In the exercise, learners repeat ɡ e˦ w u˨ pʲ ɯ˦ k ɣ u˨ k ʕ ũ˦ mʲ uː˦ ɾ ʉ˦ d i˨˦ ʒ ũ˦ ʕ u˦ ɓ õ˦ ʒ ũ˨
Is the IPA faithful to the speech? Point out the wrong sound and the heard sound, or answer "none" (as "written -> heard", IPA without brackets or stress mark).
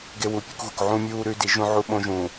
ɯ˦ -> u˦